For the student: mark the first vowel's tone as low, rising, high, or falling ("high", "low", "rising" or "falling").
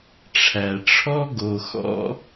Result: low